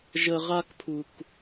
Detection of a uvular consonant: present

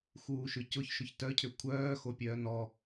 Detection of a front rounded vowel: present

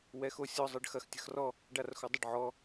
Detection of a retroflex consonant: present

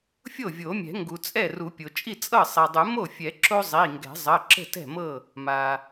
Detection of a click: present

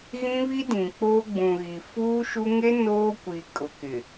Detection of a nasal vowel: present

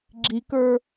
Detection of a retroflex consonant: absent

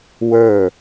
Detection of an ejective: absent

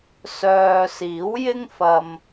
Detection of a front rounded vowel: present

